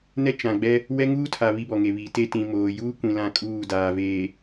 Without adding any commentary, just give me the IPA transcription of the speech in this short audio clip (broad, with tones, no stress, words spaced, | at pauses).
nɛ˦t͡ʃã˨ɡ͡bɛ˦ | wɛ˦ŋuː˦tʰa˨ βi˦bɔ˨ŋe˨βi˨˦ te˦ tĩ˨ moː˨ juː˦kʷĩ˨ lã˦˨kʼuː˦˨ daː˨ veː˨